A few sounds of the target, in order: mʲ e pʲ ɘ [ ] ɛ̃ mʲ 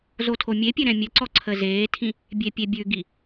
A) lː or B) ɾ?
B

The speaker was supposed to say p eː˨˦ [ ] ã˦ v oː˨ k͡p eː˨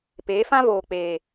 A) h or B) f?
B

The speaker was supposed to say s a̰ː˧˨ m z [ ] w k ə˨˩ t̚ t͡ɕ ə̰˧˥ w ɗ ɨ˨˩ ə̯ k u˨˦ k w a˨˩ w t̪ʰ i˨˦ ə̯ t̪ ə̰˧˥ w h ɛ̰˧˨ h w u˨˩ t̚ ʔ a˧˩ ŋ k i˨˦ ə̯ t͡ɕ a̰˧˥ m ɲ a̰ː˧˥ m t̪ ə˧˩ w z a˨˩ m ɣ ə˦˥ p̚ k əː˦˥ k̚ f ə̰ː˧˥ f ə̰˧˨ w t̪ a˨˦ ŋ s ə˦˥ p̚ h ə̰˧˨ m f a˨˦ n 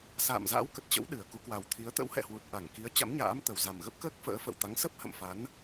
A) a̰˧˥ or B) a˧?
A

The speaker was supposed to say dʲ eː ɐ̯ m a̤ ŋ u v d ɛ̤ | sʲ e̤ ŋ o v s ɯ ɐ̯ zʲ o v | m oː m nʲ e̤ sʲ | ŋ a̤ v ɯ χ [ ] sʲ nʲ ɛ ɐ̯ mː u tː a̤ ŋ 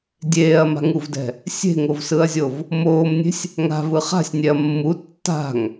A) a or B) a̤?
B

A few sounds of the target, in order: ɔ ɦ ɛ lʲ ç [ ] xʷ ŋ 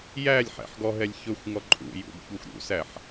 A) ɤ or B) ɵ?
B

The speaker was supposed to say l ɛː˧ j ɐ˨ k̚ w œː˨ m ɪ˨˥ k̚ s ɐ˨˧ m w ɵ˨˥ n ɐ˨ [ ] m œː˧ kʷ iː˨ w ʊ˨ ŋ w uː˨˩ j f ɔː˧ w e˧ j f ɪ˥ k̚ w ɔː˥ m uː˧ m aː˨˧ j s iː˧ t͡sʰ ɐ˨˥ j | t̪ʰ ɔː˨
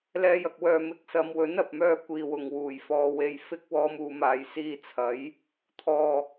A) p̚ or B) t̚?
A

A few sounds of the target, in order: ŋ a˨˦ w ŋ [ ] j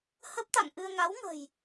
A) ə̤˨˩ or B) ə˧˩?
A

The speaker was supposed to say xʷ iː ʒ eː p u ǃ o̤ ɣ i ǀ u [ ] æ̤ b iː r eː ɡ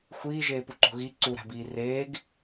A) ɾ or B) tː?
A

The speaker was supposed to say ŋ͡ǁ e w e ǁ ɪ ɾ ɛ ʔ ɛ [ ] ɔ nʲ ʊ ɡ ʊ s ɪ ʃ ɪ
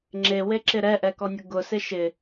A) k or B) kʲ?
A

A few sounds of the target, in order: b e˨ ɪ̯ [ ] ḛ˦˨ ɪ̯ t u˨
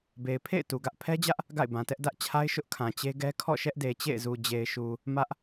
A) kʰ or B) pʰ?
B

